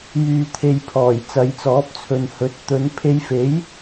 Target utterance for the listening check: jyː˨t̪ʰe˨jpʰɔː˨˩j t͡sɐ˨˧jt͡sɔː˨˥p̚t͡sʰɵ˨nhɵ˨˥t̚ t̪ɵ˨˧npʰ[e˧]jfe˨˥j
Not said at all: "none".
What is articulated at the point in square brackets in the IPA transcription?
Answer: e˧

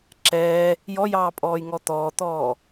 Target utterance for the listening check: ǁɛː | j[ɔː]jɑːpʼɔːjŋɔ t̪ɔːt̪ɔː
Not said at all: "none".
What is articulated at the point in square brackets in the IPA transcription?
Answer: ɔ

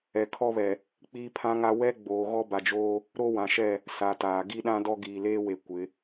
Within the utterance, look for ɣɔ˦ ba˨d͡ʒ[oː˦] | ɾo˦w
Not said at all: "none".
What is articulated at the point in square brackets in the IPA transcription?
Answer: oː˦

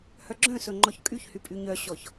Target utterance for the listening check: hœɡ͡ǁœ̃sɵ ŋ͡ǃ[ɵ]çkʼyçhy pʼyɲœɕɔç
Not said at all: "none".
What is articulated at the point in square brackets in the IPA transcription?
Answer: ɔ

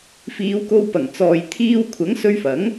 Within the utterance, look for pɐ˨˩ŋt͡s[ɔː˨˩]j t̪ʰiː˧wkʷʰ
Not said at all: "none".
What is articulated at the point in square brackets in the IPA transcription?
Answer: ɔː˨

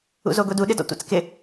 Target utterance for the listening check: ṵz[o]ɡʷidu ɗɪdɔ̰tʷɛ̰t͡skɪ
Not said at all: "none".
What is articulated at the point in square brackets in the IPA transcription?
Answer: o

